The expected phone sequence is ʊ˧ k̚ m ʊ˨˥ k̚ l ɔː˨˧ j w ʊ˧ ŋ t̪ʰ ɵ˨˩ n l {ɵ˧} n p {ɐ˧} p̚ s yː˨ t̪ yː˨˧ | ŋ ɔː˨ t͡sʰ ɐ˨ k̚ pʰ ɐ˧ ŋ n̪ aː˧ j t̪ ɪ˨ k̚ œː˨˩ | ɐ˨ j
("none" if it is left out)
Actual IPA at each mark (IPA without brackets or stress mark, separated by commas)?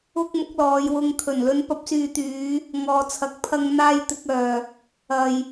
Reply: ɵ˧, ɐ˧